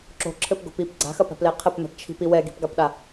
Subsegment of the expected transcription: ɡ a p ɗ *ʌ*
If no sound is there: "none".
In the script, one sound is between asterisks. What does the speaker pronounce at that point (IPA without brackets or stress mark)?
a